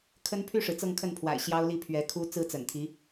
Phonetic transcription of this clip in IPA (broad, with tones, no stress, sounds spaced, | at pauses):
kʰ ə˥ n pʰ y˥˩ ʂ ɻ̩˩ t͡s ɤ˥˧ ŋ kʰ ə˥˩ n pʰ w a̰˨˩ ɪ̯ ɕ j ɑ˥ ʊ̯ l i˥˩ pʰ ɥ ɛ˧˥ kʰ u˥ t͡s ɹ̩˥ t͡s ə̰˨˩ n t̪ʰ i˧˥